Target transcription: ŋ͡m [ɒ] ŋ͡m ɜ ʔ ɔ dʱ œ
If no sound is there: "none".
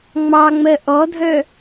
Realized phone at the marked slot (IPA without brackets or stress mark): ɑ